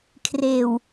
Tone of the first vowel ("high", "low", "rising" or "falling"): low